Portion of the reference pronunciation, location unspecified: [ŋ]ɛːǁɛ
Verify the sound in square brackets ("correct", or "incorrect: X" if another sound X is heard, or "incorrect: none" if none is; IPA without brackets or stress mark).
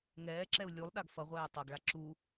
correct